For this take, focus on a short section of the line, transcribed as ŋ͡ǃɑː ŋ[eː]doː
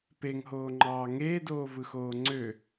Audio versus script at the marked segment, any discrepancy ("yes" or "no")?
no